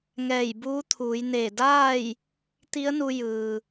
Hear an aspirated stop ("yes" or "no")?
yes